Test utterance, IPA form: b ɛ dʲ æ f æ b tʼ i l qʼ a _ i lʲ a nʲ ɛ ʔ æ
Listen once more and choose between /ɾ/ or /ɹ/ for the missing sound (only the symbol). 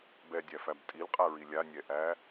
ɹ